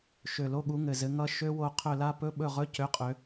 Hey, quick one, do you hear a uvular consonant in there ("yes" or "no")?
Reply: yes